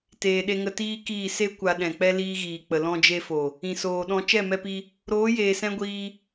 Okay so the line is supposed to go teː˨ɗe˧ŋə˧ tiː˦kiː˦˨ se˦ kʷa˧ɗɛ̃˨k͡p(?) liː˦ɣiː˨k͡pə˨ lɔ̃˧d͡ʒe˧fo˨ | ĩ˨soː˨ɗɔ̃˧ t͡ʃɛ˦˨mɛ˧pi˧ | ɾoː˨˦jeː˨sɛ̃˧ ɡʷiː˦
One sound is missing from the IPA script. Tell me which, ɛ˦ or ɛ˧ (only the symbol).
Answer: ɛ˦